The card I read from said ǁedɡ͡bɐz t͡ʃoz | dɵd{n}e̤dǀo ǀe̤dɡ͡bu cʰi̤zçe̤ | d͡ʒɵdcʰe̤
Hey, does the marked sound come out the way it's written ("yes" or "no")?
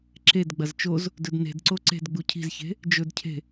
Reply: yes